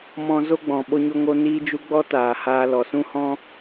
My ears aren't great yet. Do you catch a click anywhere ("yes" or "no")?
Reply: no